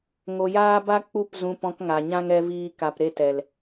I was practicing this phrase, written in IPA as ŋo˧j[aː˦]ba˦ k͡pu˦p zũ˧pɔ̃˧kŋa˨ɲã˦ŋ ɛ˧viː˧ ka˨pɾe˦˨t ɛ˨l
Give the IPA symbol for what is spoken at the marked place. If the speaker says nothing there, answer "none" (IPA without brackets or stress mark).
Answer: aː˦